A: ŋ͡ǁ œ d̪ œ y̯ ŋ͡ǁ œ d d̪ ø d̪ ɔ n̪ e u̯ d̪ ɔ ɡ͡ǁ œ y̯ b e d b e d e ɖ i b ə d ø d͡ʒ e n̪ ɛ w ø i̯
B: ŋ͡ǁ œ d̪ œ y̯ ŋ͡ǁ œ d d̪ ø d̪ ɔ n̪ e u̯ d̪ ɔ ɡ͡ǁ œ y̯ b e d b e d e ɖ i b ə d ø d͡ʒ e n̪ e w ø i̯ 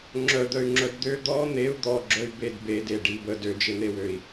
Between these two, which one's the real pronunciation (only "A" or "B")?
B